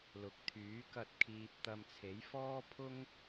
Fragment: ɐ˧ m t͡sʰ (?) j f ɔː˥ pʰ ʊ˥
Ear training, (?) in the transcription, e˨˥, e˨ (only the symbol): e˨˥